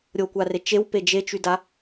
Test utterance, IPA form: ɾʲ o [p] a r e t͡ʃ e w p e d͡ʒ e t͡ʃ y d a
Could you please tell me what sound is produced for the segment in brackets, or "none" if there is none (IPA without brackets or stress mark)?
kʷ